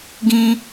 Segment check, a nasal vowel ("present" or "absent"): present